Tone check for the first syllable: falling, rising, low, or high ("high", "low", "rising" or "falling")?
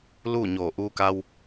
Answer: falling